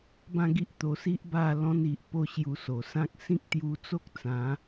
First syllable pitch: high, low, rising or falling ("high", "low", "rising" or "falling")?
falling